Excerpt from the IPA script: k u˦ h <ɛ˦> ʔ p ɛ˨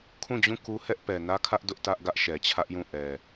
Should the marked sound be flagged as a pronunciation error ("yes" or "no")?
no